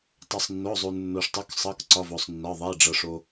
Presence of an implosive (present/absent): absent